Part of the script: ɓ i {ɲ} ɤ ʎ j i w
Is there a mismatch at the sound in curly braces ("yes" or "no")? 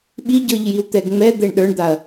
yes